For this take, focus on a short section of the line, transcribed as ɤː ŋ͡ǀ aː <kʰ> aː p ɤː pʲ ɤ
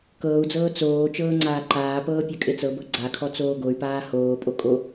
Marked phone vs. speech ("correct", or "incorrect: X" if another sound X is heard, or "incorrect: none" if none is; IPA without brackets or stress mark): incorrect: ǃ